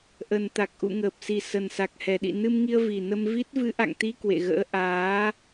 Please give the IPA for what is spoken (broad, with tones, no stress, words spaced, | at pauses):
ʔə˨˩nt̪a˨˩k̚ ʔṵ˧˨ŋəː˨˩p̚si˨˩ sə˨˩nsa˨˩k̚ hɛ˨˩ɗḭ˧˨nɨ˧mŋi˧ə̯ vi˨˩ nə˧mvi˦˥t̚ vɨ˨˦ʔa̰˧˨ŋt̪i˧ kwḛ˧˨ɣə̰ː˧˥ʔaː˨˦